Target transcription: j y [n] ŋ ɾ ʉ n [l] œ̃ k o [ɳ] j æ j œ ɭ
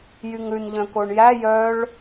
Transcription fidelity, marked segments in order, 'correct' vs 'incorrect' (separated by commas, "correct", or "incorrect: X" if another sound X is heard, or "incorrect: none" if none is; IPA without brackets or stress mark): incorrect: none, incorrect: ʎ, correct